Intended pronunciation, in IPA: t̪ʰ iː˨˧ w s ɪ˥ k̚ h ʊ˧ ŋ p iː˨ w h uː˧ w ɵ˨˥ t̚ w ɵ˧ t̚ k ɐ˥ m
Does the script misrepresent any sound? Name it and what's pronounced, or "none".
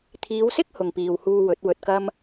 ʊ˧ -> ʊ˨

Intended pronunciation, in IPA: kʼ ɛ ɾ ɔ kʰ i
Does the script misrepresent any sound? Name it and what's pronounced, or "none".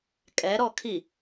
none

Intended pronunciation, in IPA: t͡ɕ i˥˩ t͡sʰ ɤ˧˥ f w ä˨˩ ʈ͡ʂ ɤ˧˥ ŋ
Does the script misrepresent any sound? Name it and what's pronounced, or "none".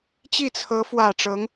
none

